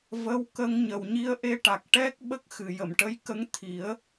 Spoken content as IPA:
və˧˥wkə˧ŋ ɲə˨˩wɲi˧ə̯ʔe˧ʈa˨˩k̚ ʈɛ˦˥k̚ ɓə˦˥k̚xɨ˨˩˨jə˨˩˨mʈə˧˥j kə˧˥ŋt̪ʰi˨˩˦ə̯

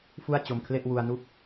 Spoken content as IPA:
fu˥˩a̯t͡ɕo˧mkʰle˥˩ʔ wu˧a̯ nu˥˩k̚

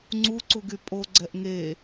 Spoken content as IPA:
ŋ͡ǀuǀuɡy pʼoɡ͡ǀɛʔ ŋe

